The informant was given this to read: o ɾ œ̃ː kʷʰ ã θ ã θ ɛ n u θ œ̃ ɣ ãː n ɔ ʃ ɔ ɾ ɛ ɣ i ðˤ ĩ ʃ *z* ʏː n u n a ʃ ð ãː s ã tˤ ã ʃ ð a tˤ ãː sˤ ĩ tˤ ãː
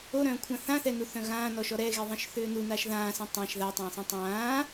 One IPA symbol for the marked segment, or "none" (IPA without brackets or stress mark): θ